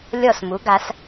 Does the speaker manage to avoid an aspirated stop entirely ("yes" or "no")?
yes